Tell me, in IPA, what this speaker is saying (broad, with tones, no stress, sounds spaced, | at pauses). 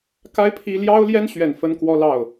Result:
k a˥ ɪ̯ pʰ i˥ l j ɑ˥ ʊ̯ l j ɛ˥ n ɕ ɥ ɛ˨˩ n f ə˥ n k w ɔ˥ l ɑ˥˩ ʊ̯